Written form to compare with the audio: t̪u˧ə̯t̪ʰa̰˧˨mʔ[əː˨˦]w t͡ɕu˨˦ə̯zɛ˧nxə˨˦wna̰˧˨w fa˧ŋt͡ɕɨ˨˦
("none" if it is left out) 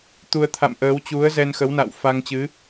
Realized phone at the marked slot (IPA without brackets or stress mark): əː˨˦